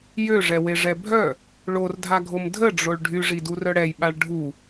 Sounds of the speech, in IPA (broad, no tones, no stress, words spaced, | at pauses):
jøʐɛweʐɛ bʱœ | ɭordʱaɡʱom dʱəɖ͡ʐoɭ ɖʱyʐidurœ ɽɛjɓaɭ ɖʱu